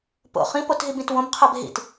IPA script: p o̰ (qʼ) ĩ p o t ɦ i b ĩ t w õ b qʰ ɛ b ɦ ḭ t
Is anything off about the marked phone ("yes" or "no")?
yes